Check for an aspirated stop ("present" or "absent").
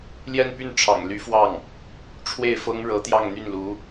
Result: present